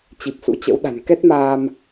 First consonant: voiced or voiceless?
voiceless